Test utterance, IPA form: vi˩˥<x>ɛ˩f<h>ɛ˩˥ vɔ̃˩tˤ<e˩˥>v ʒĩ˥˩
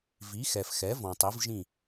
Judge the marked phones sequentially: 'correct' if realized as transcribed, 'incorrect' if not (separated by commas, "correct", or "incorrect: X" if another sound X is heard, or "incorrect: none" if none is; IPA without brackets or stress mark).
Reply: correct, incorrect: x, incorrect: i˩˥